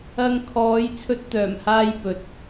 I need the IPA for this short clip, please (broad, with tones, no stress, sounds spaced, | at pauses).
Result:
ɐ˧ ŋ kʰ ɔː˨˧ j t͡sʰ ɵ˥ t̚ t̪ œː˨˩ m h aː˥ j p ɵ˨ t̚